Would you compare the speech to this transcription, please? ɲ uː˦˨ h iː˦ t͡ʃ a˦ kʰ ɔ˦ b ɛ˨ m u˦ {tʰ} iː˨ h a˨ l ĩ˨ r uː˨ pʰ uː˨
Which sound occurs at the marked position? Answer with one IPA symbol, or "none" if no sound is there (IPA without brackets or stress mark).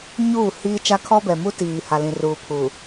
t